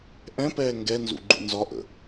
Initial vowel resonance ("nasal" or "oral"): nasal